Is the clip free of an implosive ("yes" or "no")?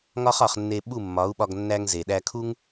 no